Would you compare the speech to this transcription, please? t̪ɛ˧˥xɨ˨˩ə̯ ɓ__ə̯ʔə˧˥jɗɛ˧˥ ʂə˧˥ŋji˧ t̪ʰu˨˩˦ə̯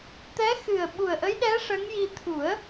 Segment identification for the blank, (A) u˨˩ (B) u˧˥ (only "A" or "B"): A